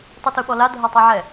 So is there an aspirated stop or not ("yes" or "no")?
no